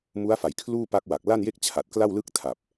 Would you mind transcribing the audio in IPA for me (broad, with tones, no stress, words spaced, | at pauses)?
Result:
mu˦˥a̯fa˨˩j kʰluː˥˩pa˦˥k̚wa˨˩k̚ la˥˩nje˥˩k̚ t͡ɕʰa˨˩t̚kla˥˩wlɯ˥˩k̚tʰa˨˩p̚